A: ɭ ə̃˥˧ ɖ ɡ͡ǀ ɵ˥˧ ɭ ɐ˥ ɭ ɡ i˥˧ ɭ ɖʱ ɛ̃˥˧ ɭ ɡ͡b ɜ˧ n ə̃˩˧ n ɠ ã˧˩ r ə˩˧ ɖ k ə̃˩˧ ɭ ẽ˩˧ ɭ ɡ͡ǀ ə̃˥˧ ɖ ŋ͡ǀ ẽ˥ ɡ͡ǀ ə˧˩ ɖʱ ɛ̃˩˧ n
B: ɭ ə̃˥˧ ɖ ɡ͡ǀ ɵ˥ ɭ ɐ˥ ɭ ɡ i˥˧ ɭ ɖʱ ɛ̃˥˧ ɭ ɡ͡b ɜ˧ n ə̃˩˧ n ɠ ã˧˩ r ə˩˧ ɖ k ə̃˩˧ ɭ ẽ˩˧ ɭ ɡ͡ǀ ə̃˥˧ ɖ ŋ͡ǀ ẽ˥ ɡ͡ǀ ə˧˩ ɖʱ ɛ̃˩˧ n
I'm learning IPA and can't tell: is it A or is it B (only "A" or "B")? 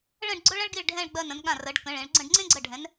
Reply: B